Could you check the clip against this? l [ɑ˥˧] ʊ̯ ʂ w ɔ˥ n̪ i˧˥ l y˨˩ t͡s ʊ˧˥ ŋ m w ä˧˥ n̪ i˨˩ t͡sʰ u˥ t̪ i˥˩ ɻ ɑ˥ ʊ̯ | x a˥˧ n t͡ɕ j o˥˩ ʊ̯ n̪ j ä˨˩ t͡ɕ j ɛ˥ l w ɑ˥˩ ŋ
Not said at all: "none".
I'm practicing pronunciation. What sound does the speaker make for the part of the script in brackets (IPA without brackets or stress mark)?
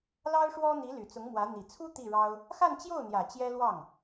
ɑ˥